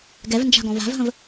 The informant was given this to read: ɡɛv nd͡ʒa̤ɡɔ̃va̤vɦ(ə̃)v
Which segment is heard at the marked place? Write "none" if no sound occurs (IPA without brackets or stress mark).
ə̃